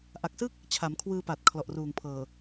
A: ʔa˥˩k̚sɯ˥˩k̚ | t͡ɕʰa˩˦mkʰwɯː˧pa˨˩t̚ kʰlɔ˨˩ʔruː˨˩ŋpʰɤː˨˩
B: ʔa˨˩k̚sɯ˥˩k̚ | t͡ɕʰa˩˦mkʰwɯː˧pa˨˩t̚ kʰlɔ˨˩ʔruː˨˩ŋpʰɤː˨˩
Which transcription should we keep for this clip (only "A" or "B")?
B